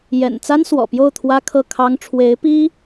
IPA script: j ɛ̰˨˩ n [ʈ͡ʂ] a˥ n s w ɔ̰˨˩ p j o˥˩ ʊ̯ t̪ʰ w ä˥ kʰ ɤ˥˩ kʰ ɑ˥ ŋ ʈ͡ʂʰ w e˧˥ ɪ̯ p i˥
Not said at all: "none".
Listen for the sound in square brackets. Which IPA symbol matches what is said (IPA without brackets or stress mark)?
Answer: t͡s